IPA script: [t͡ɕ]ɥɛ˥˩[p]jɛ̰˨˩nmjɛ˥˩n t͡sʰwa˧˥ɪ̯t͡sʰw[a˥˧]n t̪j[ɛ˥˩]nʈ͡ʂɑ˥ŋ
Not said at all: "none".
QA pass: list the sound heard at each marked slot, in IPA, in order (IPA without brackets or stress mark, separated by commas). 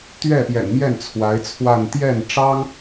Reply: t̪, p, a˥˧, ɛ˥˩